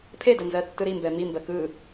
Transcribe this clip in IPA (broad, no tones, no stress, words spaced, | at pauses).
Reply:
pʰedɜ nzɜtːɯɾimbɛ mimbɜ kɯ